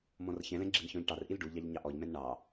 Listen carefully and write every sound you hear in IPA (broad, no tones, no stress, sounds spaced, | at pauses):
m ɔ̃ r ç ɛ̃ l ɛ̃ ɡ͡ǁ i n ç ɔ̃ ʎ ʈ ɑ r ʔ i l ɖ u ʎ ɑ ʎ ɲ ɑ ʔ ɔ ʎ m ɛ̃ n ɳ ɑ